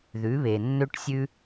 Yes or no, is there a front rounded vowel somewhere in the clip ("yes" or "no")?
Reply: yes